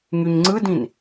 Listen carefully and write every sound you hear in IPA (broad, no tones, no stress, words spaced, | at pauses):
ŋyɲŋ͡ǀɯdĩn